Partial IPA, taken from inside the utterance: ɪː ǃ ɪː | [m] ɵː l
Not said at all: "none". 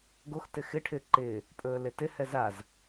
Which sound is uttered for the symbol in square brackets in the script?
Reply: pʼ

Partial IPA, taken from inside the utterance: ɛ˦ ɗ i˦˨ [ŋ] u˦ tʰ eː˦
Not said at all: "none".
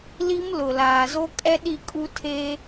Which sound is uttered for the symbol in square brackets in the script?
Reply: kʼ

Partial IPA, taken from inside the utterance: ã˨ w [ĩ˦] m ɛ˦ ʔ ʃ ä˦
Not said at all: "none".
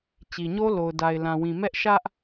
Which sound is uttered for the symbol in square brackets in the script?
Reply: ĩ˨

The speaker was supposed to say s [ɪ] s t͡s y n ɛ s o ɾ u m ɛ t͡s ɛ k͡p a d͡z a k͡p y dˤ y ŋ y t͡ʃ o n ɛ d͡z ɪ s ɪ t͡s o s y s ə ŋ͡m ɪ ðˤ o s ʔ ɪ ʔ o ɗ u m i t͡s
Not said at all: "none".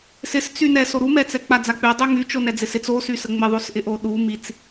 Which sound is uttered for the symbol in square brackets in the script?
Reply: ɪ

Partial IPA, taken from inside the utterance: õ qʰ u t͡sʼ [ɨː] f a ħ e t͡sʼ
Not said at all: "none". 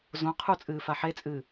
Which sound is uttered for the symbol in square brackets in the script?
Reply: ɨː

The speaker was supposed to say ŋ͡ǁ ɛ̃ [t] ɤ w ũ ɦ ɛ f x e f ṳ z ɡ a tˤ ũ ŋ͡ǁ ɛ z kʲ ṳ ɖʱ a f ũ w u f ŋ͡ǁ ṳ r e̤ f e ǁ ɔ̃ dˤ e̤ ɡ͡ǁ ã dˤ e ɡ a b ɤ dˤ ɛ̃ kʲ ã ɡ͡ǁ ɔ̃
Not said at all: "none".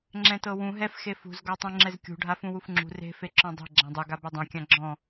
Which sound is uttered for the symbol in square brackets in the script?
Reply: t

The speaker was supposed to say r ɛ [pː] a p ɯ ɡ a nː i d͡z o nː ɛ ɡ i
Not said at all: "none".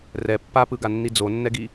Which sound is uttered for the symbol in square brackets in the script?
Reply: pː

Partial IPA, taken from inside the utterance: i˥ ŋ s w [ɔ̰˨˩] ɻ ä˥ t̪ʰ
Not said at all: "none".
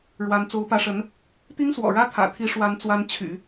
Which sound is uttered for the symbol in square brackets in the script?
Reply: ɔ̰˨˩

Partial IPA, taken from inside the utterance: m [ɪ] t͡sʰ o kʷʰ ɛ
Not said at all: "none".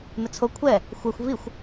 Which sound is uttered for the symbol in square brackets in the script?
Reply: ɪ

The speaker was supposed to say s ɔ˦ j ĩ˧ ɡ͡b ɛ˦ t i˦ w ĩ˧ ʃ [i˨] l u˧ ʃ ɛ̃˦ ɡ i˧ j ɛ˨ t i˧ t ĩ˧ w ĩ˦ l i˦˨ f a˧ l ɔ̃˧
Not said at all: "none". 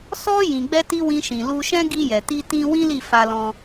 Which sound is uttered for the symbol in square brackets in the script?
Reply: ĩ˨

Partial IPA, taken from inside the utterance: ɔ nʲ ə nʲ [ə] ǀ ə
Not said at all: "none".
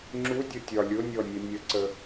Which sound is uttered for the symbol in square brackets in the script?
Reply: ə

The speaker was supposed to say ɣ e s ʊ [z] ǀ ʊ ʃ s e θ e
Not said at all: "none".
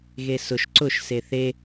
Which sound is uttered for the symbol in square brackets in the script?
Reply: ʃ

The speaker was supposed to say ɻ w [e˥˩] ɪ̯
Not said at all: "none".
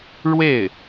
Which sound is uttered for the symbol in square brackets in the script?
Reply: e˥˩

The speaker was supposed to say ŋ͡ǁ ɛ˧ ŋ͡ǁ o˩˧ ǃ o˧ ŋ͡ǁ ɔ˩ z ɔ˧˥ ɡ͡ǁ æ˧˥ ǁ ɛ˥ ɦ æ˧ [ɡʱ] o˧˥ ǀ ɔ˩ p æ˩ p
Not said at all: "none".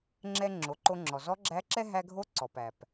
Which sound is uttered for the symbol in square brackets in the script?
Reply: ɡʱ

